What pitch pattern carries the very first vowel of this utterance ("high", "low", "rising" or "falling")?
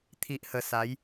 low